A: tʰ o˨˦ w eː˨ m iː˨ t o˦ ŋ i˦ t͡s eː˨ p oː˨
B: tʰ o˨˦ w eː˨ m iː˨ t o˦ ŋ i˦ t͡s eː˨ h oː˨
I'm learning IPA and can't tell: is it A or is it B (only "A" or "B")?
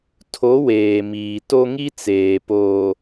A